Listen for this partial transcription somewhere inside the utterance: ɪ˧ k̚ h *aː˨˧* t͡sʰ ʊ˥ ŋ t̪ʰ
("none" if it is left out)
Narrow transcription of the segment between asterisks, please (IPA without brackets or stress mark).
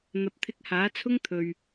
aː˨˥